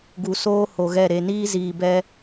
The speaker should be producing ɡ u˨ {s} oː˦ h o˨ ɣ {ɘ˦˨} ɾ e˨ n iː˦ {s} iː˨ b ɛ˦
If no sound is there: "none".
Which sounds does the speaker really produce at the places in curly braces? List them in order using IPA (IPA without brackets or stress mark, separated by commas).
s, ɛ˦˨, z